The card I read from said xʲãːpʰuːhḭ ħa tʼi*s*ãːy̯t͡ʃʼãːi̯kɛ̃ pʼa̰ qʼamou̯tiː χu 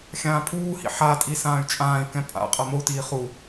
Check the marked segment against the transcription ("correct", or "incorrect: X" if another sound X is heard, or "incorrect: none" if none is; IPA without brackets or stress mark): correct